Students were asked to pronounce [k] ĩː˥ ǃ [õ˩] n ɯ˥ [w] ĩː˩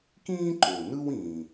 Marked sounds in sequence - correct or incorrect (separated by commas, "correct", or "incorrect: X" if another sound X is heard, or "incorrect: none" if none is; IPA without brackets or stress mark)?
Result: correct, incorrect: o˩, correct